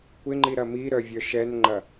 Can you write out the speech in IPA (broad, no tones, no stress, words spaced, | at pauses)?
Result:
kʷɪŋ͡ǃiɾɐ miɾœvʲœ ʃɛnŋ͡ǃɐ